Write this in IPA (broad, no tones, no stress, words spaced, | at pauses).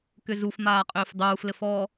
kʏzufmaːqʼʏːf dˤuːflɘf ɔ